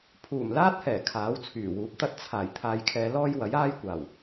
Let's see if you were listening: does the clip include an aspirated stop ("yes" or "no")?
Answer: yes